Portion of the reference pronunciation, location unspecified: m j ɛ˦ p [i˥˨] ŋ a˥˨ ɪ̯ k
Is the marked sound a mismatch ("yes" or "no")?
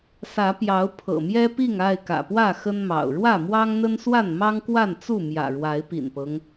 no